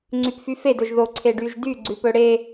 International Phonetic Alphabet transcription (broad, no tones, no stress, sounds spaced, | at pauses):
ŋ͡ǀ y p f y f e d ɵ ʒ ð o ǀʰ e ɖ y ʒ d y ɡ͡ǀ ʉ p ɵ ɽ e